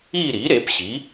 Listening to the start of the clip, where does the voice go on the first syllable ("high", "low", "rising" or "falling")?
falling